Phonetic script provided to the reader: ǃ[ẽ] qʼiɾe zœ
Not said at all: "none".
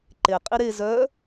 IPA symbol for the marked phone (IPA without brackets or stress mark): e